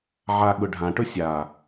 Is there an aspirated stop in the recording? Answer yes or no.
no